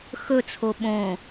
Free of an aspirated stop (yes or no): no